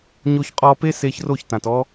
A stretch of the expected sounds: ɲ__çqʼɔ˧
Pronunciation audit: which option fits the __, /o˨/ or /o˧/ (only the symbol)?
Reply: o˧